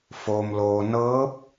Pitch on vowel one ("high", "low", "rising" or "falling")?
low